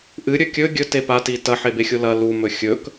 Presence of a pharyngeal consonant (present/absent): present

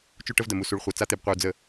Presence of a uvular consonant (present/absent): present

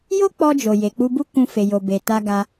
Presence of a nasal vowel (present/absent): present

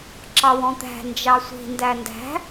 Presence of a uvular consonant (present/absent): absent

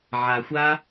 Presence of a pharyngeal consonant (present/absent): present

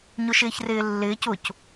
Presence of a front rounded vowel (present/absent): absent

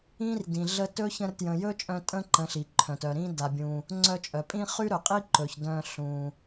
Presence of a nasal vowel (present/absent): present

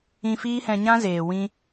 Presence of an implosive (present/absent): absent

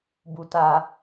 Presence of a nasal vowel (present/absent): absent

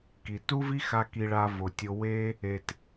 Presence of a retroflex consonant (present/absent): present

